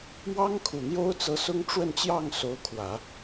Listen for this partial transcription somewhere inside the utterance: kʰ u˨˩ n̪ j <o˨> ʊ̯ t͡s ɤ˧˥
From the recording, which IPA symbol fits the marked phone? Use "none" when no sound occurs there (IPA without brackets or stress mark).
o˥